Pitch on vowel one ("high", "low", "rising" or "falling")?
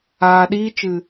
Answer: low